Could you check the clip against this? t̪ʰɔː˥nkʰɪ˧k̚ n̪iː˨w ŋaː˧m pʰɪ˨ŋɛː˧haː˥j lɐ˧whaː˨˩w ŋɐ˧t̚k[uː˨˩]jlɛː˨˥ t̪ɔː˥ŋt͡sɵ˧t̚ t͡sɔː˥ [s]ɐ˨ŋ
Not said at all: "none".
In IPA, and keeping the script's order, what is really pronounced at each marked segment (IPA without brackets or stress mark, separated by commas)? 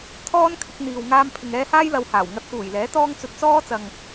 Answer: uː˨˩, t͡s